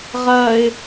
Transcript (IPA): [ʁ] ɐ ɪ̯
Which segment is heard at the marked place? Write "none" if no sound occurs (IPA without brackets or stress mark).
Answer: ʁ